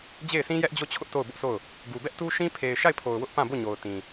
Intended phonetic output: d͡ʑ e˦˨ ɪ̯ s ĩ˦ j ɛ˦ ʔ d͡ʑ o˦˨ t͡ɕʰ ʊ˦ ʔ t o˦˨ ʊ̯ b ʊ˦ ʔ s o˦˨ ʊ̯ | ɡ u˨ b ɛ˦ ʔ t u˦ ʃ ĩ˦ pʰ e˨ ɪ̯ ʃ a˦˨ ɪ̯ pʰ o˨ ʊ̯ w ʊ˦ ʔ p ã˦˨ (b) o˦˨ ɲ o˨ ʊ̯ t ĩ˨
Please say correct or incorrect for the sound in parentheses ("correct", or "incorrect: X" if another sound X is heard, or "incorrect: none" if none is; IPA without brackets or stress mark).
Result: correct